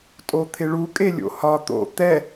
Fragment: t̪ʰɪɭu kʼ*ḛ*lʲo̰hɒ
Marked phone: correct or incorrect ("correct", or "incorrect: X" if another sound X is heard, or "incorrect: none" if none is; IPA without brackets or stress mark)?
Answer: incorrect: e